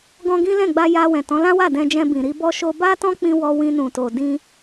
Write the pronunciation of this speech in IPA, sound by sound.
ɡɔ̃˧ɡĩ˦lɛ̃˦˨ɡ͡ba˧ ja˧wɛ̃˨tɔ̃˨˦ lã˦wa˦˨ dɛ̃˧d͡ʒɛ̃˧ bĩ˨ɾi˧bɔ˦ʃo˦ ba˦tɔ̃˦k͡pĩ˧ wɔ˧wĩ˧nũ˨to˨ dĩ˧

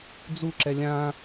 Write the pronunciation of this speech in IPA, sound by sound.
d͡zu ǁɛlʲã

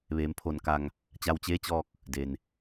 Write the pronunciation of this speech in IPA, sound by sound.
ʋeː˩˧mpʰo˧˩nka˧˩ŋ | t͡ɕa˧wt͡ɕeː˧˥t͡ɕɔː˧k̚ | de˩n

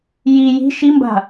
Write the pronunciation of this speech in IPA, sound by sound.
ji ji̤ ʃimba̤

